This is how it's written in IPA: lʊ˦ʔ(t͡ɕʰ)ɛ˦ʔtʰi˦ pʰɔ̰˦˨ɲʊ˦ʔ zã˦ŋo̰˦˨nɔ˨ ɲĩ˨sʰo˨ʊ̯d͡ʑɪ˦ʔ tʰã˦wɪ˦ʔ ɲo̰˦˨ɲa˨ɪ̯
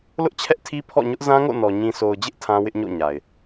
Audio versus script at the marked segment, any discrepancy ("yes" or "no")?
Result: no